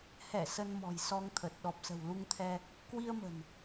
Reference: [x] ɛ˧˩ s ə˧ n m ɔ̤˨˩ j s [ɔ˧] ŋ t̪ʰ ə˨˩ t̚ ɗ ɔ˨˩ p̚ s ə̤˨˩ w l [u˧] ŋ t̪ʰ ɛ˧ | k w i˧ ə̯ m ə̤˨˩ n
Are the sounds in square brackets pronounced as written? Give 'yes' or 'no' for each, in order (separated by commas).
no, yes, yes